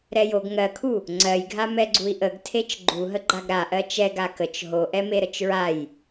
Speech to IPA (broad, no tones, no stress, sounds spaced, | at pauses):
ɾ ɛ j o ɡ ŋ ɜ kʰ u | ŋ͡ǀ ɜ j ɡʱ a m ɛ ɡ͡ǀ u i̯ ʔ ə ɡ tʰ e t͡ʃ ɡ͡ǃ u ɦ ə ɡ͡ǃ a ɡ ɾ a ʔ ɜ t͡ʃ ɛ ɡ a k ə t͡ʃ ɦ o ʔ ɛ m e ɾ ə t͡ʃ ɹ a j